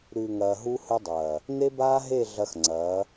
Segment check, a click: present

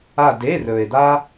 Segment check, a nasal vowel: absent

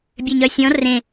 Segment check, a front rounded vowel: present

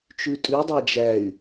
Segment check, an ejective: present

